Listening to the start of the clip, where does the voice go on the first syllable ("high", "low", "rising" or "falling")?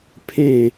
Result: falling